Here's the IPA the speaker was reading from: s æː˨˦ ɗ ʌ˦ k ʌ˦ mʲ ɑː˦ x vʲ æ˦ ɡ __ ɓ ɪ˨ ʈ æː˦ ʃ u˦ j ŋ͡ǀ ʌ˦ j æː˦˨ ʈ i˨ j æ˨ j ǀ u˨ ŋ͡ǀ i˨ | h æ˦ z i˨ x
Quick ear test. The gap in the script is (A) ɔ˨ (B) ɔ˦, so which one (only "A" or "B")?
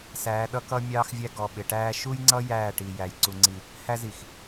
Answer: A